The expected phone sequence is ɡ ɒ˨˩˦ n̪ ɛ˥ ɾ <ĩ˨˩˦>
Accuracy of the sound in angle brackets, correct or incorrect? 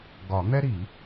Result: incorrect